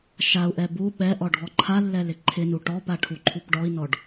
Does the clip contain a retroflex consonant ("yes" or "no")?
yes